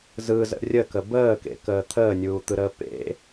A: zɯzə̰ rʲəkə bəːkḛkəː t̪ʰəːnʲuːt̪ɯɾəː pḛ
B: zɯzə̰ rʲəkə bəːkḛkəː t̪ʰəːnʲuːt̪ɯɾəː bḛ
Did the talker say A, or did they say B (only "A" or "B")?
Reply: A